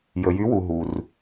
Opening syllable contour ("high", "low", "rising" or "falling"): low